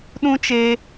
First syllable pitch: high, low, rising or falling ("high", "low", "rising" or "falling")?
high